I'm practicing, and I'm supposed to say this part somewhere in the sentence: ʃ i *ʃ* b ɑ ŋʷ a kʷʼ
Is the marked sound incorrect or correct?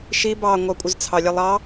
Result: incorrect